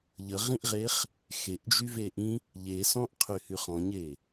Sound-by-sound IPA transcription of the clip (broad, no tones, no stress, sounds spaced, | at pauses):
ʎ ə ʁ ĩ ʔ ʁ e χ | x e ʔ d͡ʒ y v e ʔ ĩ | ʎ e s ɔ̃ ʔ qʰ y h y χ ɔ̃ ɲ e